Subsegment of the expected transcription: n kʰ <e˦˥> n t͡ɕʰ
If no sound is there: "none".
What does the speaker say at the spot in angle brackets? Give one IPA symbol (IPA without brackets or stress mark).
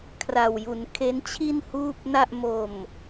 e˦˥